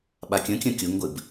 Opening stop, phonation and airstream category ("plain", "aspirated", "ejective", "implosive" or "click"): implosive